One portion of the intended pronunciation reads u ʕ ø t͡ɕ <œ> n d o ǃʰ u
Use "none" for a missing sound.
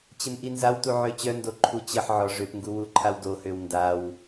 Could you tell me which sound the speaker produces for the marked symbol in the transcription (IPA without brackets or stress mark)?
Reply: œ